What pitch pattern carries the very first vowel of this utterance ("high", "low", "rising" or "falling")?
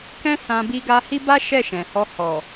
high